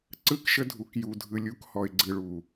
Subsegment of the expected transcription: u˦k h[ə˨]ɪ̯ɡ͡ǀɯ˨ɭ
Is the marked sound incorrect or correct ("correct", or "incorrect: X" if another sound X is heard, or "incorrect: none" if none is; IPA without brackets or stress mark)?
incorrect: ɔ˨